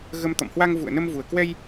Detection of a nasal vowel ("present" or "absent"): absent